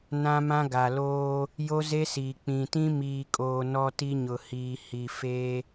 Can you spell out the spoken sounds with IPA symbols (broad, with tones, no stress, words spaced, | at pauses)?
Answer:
nã˦mã˦ ɡa˨loː˦ | jo˦ze˦siː˨ k͡pĩ˨tĩ˦ miː˨kʼoː˨ nɔ˦ti˦ɲʊ˨ hiː˨hi˨ fe˦